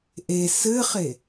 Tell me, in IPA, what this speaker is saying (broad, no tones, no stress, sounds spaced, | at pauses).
ʔ e s ɘ χ e